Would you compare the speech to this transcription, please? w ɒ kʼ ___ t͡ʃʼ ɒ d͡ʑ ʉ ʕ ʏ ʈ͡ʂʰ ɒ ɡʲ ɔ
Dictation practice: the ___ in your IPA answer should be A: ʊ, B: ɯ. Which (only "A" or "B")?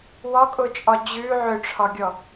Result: A